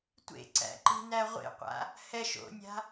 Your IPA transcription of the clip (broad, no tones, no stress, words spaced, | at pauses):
tʷḛǀæ̰ǃi̤ næʁʷḛqʷa̰ | hɛʃ o̰nʲa̤